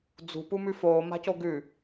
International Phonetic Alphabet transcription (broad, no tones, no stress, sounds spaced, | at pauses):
d͡z ṳ p u m ʉ f oː m a̤ c o ɡ ʉ